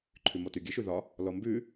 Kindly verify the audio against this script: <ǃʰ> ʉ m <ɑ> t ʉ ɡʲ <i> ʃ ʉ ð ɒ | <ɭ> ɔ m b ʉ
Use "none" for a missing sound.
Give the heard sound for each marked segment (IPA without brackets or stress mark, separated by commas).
ǃʰ, ɔ, ɨ, l